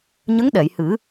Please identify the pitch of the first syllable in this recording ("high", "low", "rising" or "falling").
rising